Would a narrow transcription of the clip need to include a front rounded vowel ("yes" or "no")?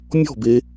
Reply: no